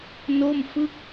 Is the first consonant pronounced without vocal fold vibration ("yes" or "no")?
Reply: no